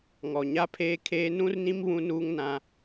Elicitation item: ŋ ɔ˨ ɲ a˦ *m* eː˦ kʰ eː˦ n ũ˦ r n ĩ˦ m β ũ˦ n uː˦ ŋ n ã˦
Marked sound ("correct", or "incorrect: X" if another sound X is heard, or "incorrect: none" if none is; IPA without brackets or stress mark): incorrect: pʰ